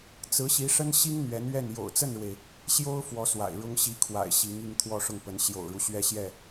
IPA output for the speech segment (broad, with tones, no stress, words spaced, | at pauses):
t͡sɹ̩˧˥ɕi˧˥ʂə˥n ɕi˥ŋ n̪ɥɛ˧˥nɥɛ˥˩n jo̰˨˩ʊ̯t͡sə˥˩nɻwe˩ɪ̯ | ɕjo˥ʊ̯ fwɔ˧˥ swa̰˨˩ɪ̯ɻʊ˥ŋ ɕi˧˥ kʰwa̰˨˩ɪ̯ ɕi˧˥ŋi˥˧ŋ t̪ʰwɔ˥˧ʂʊ˥˩ŋpə˧˥n ɕjo̰˨˩ʊ̯ɻu˦ ɕɥɛ˥˧ɕjɛ˥˩